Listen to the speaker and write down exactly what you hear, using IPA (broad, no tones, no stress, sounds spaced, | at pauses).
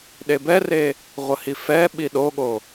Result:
ɗ e b ɛ r e | ʁʷ ə h i f ɛ ɓ i ɗ o ɠ o